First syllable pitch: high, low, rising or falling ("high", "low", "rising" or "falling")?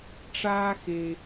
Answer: high